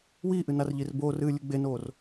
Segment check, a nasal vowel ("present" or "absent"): absent